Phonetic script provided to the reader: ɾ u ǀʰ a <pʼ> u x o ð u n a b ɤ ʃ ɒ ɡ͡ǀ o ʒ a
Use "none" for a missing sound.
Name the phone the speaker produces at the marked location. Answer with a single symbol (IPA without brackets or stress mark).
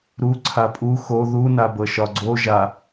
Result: pʼ